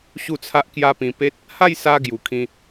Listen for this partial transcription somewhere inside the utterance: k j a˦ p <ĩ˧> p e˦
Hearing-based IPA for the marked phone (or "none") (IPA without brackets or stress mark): ĩ˧